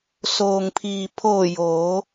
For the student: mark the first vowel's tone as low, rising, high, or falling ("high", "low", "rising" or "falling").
low